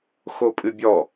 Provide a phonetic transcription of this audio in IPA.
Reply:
x o pʼ ɨ bʲ ɔ

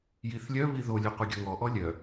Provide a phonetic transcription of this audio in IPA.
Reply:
j i θ lʲ œ β i ð o lʲ œ qʷ œ ɡʲ ɔ ŋ ɔ ʔ ɔ lʲ œ

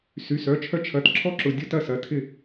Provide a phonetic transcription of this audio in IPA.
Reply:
s y˩˧˩ s œ˩˧˩ t͡ʃʰ œ˧ t͡ʃʰ ɐ˩˧˩ t ǁʰ ɔ˦˥ ǁ ʊ˩˧˩ dʲ ʊ˦˥ t ɐ˥˩ s ɐ˩˧˩ tʰ ɪ˥˩

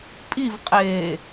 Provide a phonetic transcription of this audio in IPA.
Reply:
pʼ i v qʼ eː

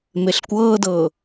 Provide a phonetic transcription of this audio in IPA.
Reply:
m e ɬ kʷ ɤː d ɤ

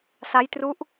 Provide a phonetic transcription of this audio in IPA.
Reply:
s a˦˥ j t r u˦˥ ʔ

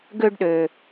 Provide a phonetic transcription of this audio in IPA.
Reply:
ɡ ø˧ ɖ ɗ ø˩

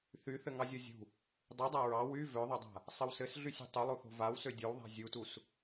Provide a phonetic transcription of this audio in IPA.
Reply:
θ y θ ɘ ŋ ɑ zʲ ɔ zʲ ṳ | dˤ y dˤ a ɹ ɑ w y v ø ðˤ ø dˤ a̤ | sˤ ɘ w s ɘ s ɮ y sʲ ṳ tˤ y lˠ u θ o̤ v a w s ø dʲ o w ðˤ a̤ zʲ u t u s

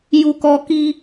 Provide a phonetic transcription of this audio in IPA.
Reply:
j u˧ k ɔ˧ k i˧

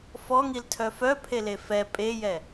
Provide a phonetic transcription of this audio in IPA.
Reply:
f ɔ ŋ i l tʰ œ f œ pʰ e l e f ɛ pʼ e j ɛ

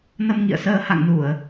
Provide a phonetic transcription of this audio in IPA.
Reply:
n ə˧ m ŋ ḭ˧˨ ə̯ s əː˧ h a̰˧˨ ŋ n u˧˩˨ ə̯

